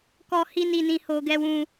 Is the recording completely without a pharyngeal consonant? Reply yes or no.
yes